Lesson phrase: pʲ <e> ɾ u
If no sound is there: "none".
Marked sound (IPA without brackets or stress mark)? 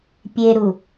e